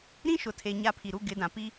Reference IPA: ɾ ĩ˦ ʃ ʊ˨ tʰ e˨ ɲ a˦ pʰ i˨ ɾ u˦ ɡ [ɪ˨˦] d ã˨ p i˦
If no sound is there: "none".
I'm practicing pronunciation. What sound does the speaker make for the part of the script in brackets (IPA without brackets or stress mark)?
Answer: ɪ˨˦